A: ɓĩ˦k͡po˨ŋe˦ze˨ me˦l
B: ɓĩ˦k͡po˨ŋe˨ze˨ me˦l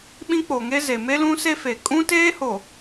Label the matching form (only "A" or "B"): A